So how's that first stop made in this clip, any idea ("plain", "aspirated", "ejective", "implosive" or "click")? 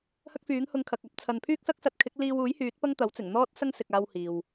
plain